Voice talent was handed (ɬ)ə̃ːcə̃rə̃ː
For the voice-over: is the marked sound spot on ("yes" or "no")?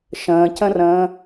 no